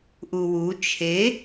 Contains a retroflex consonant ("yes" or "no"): no